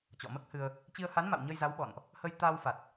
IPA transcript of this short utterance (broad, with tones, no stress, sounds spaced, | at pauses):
t͡ɕ ɔ̰˧˨ m əː˦˥ k̚ h ɨ˧ ə̯ | t͡ɕ i˧ ə̯ h a˨˦ n m a̰˧˨ w ɲ ə˧ j z a˨˦ w ɓ ɔ̰˧˨ n ʔ | h ə˧ j t̪ aː˧ w f a˨˩ t̚